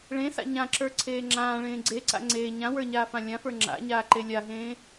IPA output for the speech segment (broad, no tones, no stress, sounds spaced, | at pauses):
ɭ ẽ s a̰ ɲ ã ǁ ə˞ ǀʰ eː ŋ͡ǁ ãː ɭ ẽː ɡ͡ǀ e ǀ a̰ ŋ͡ǀ eː ɲ ã w ə˞ ɲ aː f ã lʲ ã f ə˞ ŋ͡ǁ a̰ ɲ aː ǃ e lʲ a ɦ ẽː